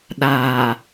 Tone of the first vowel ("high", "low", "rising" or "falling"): low